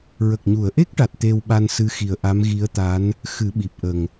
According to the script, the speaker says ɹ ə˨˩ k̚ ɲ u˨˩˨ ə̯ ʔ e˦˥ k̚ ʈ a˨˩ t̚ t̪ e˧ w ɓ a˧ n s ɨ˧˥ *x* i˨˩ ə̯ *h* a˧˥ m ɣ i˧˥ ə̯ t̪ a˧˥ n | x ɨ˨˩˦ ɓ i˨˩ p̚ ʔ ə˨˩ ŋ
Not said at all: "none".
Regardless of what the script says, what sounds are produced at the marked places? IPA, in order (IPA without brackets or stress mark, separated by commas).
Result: x, ʔ